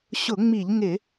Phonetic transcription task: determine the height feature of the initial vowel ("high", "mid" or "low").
high